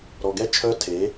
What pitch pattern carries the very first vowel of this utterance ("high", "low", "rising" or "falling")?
low